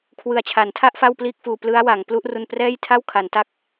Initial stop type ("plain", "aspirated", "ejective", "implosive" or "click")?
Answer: aspirated